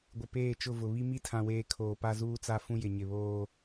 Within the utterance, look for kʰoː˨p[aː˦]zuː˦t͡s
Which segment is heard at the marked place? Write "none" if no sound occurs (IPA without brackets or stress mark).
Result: a˦